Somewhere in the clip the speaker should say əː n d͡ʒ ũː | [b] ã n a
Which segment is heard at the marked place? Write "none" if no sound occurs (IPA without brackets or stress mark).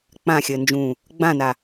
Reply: ɡ͡b